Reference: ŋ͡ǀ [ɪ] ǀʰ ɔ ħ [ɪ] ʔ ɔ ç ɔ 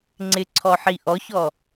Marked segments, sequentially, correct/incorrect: correct, incorrect: i

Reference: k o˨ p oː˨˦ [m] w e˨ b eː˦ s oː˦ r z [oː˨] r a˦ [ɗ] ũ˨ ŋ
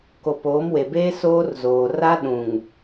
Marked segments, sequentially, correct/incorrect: correct, correct, correct

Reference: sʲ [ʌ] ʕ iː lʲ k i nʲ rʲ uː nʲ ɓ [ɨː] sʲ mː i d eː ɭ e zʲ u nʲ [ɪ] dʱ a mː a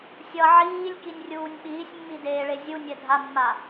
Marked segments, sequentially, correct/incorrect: correct, incorrect: iː, incorrect: ɛ

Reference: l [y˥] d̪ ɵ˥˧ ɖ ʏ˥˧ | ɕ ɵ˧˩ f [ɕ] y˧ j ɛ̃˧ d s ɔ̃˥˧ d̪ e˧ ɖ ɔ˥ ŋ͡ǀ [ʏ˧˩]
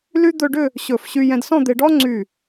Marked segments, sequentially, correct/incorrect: correct, correct, incorrect: y˧˩

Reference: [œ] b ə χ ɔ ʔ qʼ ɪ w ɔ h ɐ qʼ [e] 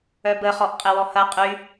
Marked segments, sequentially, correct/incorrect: correct, incorrect: y

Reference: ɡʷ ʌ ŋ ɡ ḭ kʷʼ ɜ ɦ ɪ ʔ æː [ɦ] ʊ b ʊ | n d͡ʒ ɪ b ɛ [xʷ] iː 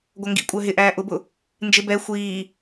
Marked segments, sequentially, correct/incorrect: incorrect: ʔ, correct

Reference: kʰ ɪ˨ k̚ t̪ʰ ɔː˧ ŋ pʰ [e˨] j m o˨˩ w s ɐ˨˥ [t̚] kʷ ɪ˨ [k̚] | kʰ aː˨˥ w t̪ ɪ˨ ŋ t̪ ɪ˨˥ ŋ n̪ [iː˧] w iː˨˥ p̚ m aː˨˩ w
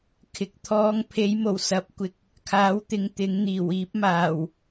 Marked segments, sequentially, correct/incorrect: incorrect: e˨˥, incorrect: p̚, correct, incorrect: iː˨˩

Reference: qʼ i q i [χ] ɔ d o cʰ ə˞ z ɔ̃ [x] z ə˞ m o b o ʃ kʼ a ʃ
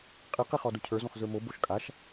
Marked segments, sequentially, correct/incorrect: correct, correct

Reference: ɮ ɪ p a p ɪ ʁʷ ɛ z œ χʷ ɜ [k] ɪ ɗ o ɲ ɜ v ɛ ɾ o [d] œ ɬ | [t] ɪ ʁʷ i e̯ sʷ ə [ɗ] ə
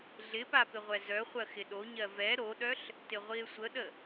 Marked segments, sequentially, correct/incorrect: incorrect: x, incorrect: ɗ, correct, correct

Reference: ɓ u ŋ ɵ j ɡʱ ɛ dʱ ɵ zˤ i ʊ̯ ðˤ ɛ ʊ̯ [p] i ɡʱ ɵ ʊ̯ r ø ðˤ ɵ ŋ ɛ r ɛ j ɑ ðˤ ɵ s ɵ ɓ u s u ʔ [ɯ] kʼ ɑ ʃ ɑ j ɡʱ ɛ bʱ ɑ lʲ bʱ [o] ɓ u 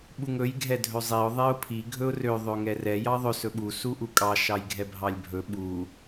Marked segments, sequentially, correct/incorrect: incorrect: pʰ, incorrect: u, incorrect: ɵ

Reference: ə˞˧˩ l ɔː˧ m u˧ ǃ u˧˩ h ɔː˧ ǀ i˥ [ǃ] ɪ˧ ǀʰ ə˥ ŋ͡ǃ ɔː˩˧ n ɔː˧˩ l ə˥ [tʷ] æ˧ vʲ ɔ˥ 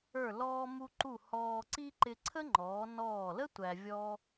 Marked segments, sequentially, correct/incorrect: correct, correct

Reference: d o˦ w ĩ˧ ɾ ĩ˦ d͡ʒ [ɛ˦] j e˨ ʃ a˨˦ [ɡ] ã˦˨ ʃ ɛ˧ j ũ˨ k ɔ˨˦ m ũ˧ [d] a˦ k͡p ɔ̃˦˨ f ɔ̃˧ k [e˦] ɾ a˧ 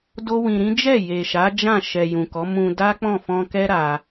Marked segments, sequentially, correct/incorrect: incorrect: ɛ˦˨, incorrect: d͡ʒ, correct, incorrect: ɛ˦

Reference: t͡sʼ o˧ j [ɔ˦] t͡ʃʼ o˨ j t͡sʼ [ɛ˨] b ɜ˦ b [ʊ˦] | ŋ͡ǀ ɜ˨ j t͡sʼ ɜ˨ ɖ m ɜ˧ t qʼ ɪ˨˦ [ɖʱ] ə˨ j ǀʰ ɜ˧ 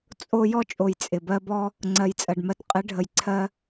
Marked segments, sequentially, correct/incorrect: correct, incorrect: ɪ˨, incorrect: ɔ˦, correct

